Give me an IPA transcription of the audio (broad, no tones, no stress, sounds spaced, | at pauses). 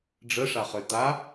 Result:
ɖ͡ʐ ə ʂ a χ ø t̪ a